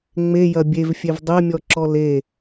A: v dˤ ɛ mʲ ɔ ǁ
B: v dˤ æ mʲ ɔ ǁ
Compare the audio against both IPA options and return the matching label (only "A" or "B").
A